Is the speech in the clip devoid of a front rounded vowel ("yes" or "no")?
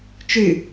no